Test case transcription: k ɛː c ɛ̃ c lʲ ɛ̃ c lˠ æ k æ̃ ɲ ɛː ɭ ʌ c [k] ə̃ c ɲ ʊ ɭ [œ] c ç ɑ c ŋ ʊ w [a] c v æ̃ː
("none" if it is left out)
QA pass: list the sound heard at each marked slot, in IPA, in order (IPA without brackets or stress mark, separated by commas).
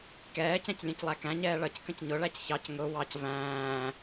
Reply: k, æ, ɑ